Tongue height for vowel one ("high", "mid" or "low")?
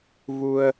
high